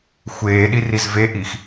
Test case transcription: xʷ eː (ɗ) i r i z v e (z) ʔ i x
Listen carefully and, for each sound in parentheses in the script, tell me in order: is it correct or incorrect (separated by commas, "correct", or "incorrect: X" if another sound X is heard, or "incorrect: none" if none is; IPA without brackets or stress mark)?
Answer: correct, incorrect: none